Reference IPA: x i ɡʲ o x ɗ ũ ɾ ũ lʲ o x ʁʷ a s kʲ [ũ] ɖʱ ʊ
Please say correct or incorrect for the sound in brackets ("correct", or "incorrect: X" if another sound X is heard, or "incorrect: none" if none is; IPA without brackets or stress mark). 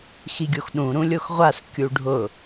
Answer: incorrect: u